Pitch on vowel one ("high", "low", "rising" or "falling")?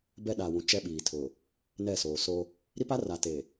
high